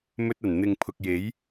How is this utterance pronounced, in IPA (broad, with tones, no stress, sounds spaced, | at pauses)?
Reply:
m ɵ˧ t̚ ɐ˨˩ n n̪ ɪ˨ ŋ pʰ ʊ˨ k̚ j e˨˥ j